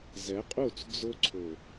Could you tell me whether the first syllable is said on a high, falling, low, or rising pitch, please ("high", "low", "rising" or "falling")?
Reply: rising